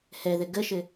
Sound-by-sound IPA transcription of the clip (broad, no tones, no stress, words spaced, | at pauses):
hɛðɘ ɡəʃɘ